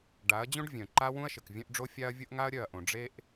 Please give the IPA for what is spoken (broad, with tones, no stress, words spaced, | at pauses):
ɖa˨˦ɐ̯d͡ʑõ˦ɖvʲœ̃˨ ǃa˦ wũ˦ɐ̯ʃɘ˨kvʲœ̃˦ʔɖ͡ʐo˦ fʲa˦ɐ̯ vʲʊ˦ʔŋa˦ɐ̯ɾʲœ˦˨ɐ̯ʔõ˨ ɖ͡ʐe˦ʔ